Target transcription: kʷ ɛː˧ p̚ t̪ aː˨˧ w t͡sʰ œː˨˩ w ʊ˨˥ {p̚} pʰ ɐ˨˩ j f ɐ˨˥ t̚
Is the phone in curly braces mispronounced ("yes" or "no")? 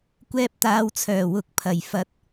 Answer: yes